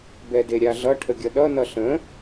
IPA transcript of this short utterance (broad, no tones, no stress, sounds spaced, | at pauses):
b ɛ d e ɾʲ a ɮ ʌ ʈʰ ə ɡʲ ʌ ɗ ʌ n ʌ ɬ ə̃